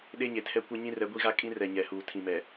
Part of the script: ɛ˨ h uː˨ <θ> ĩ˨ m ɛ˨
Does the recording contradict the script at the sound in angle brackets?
yes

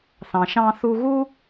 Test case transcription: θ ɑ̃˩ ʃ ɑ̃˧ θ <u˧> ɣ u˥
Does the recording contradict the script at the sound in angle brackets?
no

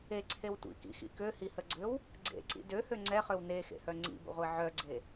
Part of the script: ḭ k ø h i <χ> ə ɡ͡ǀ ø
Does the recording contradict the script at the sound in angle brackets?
yes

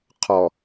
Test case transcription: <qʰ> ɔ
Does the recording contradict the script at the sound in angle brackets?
no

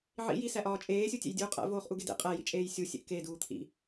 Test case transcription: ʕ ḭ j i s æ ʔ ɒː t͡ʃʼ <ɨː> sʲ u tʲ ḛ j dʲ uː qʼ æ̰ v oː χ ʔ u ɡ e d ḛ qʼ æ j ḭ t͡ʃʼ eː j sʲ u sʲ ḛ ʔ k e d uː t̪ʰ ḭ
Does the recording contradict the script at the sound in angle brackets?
yes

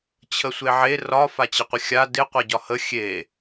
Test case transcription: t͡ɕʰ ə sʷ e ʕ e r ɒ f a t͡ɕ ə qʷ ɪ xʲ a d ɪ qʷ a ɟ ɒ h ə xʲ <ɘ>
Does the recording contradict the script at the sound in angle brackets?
yes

